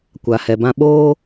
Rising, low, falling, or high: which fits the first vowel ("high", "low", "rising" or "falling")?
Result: low